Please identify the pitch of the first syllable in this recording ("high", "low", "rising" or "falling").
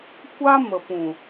high